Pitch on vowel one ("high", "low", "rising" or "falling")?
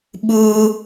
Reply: high